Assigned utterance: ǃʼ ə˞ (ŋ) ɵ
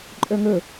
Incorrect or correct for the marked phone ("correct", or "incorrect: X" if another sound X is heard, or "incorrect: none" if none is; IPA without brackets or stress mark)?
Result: correct